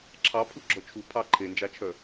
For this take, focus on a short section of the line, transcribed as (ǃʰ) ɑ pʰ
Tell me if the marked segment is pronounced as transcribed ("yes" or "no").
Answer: no